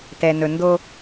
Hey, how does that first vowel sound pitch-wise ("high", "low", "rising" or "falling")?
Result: low